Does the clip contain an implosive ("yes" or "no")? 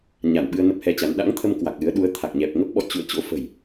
yes